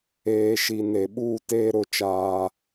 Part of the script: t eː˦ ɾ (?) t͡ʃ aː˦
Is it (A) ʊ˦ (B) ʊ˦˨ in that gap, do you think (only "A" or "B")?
B